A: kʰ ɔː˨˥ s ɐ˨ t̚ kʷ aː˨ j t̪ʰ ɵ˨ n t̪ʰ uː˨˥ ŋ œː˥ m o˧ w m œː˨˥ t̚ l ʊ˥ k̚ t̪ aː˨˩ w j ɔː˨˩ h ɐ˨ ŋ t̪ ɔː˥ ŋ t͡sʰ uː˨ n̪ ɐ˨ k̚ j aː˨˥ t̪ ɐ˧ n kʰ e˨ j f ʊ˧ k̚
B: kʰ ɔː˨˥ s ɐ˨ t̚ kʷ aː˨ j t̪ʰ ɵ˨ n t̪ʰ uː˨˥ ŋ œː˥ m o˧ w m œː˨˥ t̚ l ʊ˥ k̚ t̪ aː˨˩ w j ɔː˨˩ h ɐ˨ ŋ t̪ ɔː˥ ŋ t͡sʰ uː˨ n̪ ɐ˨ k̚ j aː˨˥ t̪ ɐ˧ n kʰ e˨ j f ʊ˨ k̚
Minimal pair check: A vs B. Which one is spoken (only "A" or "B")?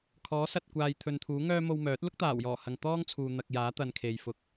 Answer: B